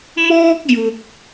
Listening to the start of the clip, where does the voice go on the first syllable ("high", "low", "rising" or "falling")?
high